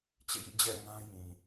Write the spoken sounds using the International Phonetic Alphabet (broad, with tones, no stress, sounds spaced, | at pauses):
t͡ɕ ḛ˦˨ j ḭ˦˨ d͡ʑ ɛ̰˦˨ ŋ ã˦ j ĩ˨